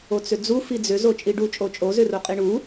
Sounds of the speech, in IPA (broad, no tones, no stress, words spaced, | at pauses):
ot͡sʏd͡zu fid͡zʏzo t͡ʃʼiɖut͡ʃʼo t͡ʃʼozʏro qʼiɳu